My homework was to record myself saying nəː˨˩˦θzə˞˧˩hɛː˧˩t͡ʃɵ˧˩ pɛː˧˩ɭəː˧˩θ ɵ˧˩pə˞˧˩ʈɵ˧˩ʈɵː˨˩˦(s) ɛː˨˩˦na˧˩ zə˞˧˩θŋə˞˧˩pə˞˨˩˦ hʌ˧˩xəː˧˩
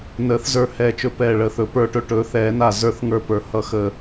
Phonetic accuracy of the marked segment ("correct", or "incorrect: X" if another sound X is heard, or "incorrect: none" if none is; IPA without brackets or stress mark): incorrect: θ